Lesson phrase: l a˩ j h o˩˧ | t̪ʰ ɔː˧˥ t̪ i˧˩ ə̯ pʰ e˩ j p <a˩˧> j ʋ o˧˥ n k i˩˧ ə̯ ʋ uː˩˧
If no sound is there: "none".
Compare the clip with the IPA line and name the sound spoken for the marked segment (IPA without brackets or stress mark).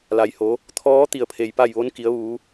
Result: a˥˨